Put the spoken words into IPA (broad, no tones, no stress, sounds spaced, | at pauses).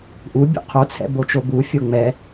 ʔ u bʲ ṵ qʰ o t͡sʰ ɛ̰ b o t͡ʃ o b u fʲ o ŋ͡m ɛ